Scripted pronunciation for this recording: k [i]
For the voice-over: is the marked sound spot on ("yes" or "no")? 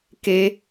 no